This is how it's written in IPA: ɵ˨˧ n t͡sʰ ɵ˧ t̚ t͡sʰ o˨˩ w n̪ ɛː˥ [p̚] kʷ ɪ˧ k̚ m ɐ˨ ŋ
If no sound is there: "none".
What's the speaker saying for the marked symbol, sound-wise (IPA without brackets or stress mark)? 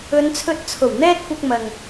t̚